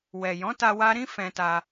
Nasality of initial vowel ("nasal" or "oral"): oral